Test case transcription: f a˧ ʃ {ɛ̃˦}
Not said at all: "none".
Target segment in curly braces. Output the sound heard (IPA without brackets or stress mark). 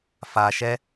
ɛ˦